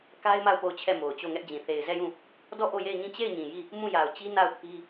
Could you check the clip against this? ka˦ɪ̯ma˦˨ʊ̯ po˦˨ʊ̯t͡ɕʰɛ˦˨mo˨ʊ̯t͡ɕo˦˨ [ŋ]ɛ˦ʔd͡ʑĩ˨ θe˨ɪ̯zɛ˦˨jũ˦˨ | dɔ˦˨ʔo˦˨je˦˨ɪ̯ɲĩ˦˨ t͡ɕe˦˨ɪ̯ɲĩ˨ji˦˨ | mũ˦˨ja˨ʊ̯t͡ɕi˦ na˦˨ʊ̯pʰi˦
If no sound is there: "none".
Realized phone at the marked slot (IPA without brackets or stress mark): ŋ